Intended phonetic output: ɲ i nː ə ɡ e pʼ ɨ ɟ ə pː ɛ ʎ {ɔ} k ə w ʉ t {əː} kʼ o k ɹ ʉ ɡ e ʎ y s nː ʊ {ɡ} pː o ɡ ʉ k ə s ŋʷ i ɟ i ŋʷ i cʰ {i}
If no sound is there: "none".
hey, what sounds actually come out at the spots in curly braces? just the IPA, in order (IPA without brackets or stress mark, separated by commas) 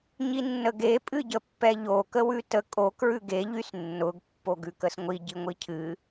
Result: o, ə, ɡ, ɨ